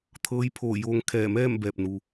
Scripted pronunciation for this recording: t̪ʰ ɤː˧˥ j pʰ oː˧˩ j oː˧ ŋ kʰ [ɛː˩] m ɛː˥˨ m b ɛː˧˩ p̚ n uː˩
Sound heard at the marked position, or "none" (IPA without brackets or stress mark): ɛː˧˩